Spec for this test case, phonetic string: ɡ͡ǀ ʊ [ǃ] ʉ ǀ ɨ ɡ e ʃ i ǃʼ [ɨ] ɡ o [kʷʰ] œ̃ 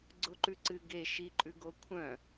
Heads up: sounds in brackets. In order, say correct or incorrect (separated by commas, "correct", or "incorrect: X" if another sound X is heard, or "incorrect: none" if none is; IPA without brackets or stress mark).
correct, incorrect: ʉ, correct